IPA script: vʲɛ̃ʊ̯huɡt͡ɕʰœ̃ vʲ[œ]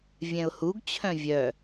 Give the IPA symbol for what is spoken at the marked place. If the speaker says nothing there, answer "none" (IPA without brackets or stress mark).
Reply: œ